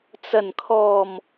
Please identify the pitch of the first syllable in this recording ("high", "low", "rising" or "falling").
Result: low